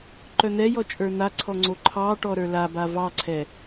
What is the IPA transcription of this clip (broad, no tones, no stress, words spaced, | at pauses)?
ǃœn̪ɛjɔ t͡ʃʼə˞n̪aǀʰɔ ŋ͡ǀoǃʰɑʈɔ ɾə˞laba vɑǀʰɛ